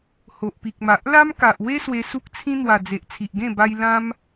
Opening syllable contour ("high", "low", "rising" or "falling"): low